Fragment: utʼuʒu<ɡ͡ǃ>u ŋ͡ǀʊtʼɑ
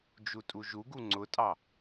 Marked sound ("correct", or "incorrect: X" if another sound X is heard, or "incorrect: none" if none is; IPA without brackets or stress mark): incorrect: ɡ